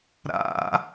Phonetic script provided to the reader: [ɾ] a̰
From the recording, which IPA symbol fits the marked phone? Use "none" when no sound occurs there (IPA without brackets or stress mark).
ɾ